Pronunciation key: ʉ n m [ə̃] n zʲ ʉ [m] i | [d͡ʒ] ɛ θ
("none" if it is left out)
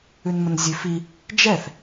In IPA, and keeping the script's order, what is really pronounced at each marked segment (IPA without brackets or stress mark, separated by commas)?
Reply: ə̃, f, d͡ʒ